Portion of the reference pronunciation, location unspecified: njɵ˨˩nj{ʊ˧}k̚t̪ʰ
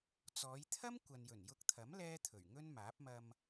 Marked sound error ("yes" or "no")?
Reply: no